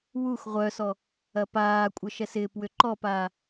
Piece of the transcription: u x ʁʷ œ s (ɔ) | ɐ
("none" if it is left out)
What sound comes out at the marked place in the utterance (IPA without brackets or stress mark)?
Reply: ɔ